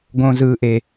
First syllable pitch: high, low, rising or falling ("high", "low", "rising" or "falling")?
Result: low